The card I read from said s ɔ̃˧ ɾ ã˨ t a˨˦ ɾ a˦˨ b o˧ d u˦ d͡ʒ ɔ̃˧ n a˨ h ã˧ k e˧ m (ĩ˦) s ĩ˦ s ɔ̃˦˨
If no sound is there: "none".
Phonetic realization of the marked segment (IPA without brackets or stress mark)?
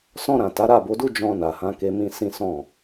ĩ˦